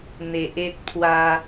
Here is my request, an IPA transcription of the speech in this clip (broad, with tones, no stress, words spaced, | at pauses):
n̪e˨ʔe˦t̚pʰwa˧